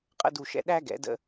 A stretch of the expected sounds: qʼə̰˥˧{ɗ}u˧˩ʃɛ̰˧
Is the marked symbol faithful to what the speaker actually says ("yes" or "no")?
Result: no